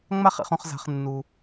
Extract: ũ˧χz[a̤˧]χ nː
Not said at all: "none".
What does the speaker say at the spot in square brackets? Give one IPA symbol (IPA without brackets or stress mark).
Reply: a̤˧